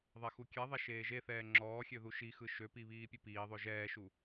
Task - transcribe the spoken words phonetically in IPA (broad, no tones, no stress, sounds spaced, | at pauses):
ðˤ ɛ x u kʲ ɛ ðˤ ɛ ʃ eː ʒ e θ ɛː ŋ͡ǁ ɔː xʲ ø ð u ʃ i x ɯ ʃ ø p i β iː pʲ ɯ p iː ðˤ ø ʒ ɛː ʃ u